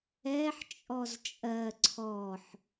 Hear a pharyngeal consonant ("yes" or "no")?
yes